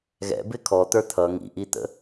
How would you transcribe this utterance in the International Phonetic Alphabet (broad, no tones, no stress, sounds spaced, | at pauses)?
ɣ ɛ̰ b ɪ kʰ ɔ t̪ ə˞ t̪ʰ ʌ ŋ ḭ ʔ i t̪ ə̰